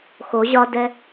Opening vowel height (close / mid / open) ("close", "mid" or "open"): mid